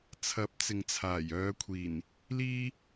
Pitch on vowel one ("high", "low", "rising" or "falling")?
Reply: rising